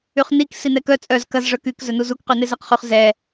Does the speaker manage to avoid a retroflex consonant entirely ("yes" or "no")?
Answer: no